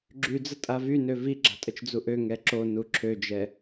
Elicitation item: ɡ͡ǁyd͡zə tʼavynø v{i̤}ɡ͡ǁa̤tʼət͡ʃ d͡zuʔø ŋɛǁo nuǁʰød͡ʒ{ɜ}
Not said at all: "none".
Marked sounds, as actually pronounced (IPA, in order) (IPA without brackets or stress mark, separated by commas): i, ɛ